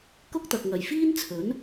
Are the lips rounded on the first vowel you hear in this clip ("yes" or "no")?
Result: yes